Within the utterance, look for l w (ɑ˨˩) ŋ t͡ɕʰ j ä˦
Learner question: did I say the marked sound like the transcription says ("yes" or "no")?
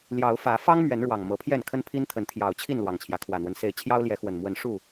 yes